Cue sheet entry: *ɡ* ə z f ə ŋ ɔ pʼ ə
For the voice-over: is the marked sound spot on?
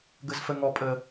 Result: yes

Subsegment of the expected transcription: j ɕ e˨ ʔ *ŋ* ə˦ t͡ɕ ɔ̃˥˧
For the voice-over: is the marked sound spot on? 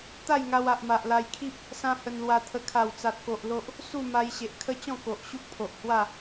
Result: no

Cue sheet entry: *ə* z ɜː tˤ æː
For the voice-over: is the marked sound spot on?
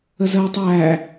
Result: yes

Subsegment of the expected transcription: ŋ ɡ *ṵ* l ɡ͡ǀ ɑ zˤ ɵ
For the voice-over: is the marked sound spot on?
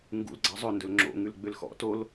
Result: yes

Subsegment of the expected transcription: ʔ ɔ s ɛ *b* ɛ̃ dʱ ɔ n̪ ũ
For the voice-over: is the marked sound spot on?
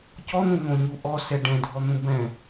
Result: no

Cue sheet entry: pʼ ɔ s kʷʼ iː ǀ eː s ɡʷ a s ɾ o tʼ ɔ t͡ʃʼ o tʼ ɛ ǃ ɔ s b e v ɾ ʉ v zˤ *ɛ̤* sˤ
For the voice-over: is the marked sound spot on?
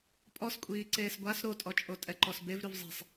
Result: yes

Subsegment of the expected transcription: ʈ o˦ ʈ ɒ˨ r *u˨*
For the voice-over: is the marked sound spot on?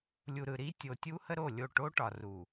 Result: yes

